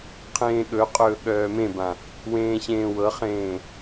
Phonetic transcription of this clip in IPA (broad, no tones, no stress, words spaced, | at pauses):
qʰẽːɠɵqʼɵː ɠœːmẽbã | wẽːɕẽːwɤχẽː